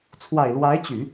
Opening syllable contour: low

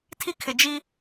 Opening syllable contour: high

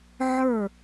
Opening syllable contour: falling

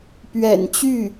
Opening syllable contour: low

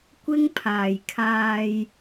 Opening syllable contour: high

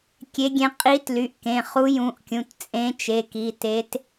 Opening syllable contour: rising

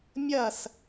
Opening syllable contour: falling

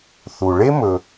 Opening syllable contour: low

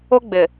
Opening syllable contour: high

